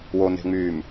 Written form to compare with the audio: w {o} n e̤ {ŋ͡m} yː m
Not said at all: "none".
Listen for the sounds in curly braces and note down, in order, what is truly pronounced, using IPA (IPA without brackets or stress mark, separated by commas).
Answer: o, ŋ͡m